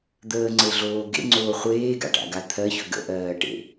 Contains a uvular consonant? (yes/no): yes